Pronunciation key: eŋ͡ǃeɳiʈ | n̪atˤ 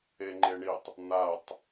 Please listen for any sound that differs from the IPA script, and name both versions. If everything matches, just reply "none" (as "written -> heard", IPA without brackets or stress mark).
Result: ʈ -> tˤ